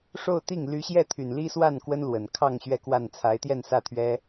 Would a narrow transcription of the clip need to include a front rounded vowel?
yes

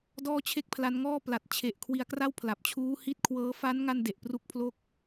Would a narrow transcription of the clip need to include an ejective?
no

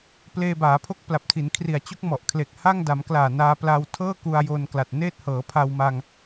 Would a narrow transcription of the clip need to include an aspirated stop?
yes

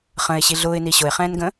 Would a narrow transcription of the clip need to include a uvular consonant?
yes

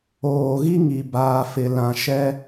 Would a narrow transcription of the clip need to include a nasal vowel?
yes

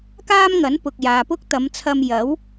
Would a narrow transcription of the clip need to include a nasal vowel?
no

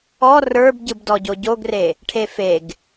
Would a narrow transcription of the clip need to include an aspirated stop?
yes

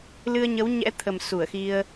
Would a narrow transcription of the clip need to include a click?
no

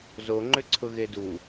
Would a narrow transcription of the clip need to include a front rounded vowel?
yes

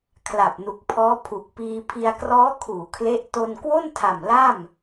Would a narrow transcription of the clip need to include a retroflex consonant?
no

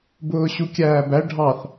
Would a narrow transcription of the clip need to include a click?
no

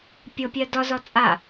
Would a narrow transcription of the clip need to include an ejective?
yes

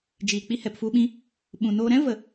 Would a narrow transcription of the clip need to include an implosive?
yes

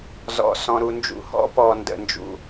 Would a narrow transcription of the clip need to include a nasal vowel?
yes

